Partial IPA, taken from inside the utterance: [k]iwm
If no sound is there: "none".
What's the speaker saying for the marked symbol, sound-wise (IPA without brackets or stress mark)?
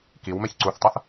k